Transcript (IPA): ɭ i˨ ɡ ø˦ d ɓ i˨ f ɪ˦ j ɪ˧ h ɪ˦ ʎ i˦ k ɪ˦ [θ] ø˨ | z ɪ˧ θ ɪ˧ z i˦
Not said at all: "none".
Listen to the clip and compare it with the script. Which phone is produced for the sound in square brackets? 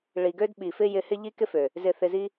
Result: f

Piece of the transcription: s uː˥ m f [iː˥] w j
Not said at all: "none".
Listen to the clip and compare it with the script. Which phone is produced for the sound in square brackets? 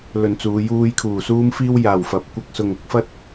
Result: iː˥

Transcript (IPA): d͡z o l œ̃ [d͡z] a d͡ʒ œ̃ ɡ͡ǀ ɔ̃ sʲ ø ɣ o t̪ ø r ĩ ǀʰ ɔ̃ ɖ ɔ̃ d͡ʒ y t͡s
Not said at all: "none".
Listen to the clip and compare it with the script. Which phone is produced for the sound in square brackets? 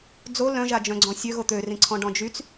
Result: ʒ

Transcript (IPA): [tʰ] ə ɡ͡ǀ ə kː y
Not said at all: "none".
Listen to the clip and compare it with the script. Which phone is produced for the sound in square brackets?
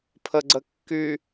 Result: pʰ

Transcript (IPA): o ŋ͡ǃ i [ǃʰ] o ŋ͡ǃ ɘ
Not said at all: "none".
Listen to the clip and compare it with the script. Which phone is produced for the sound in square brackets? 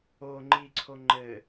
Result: ǀʰ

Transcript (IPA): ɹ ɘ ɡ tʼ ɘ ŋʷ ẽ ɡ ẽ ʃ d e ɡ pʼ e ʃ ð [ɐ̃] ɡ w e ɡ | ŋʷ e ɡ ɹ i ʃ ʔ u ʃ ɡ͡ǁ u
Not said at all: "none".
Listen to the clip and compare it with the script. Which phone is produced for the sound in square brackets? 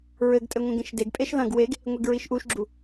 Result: ɐ̃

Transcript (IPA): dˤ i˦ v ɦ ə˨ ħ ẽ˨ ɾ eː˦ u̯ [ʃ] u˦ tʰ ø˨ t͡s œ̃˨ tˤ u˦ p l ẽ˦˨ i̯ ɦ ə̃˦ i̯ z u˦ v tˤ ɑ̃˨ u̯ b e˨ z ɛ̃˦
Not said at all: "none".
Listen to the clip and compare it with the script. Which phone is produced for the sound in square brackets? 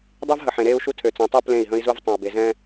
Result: ʃ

